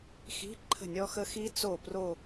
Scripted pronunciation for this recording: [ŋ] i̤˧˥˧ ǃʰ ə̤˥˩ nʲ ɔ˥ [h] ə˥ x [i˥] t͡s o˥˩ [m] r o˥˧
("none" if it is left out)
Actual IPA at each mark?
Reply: x, x, i˥, p

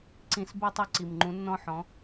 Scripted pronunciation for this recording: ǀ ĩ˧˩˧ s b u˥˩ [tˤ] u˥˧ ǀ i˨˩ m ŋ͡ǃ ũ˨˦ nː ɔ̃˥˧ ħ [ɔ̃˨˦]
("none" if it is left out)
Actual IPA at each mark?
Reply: tˤ, ɔ̃˨˦

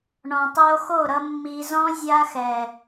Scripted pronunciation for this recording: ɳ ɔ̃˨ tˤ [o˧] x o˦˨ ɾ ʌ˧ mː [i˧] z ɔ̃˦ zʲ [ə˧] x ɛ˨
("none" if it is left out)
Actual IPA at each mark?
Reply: o˧, i˧, a˧

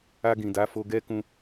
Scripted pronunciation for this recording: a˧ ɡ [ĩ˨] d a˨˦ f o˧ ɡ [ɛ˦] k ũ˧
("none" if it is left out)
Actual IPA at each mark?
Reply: ĩ˨, ɛ˦

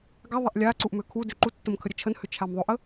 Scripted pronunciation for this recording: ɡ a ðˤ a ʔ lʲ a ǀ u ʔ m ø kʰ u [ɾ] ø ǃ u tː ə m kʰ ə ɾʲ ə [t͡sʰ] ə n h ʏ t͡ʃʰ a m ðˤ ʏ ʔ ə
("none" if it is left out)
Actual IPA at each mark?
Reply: d, t͡ʃʰ

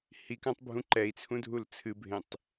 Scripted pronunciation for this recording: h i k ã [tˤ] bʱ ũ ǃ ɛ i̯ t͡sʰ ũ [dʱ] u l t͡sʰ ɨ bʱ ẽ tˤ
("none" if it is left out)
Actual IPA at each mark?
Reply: tˤ, dʱ

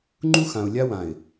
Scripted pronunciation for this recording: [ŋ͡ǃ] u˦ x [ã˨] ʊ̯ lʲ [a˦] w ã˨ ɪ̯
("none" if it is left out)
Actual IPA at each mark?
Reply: ŋ͡ǃ, ã˨, a˦

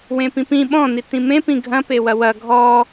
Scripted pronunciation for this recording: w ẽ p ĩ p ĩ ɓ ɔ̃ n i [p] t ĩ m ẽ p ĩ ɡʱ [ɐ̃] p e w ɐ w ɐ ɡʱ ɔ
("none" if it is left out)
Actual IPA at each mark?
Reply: none, ɐ̃

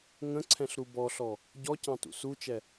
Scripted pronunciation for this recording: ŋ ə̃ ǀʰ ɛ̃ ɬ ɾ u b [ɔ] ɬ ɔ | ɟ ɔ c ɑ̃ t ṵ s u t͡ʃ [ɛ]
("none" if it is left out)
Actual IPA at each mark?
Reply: ɔ, ɛ

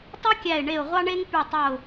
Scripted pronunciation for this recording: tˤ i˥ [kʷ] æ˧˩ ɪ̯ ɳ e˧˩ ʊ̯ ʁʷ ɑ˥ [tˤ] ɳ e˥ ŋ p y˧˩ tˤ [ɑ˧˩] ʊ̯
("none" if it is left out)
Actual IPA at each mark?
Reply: kʲ, none, ɑ˧˩

